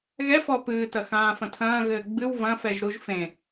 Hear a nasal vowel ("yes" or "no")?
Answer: yes